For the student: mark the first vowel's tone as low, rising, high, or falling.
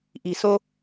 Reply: low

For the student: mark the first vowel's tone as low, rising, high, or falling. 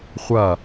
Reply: falling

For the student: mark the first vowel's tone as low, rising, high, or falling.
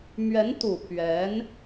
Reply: rising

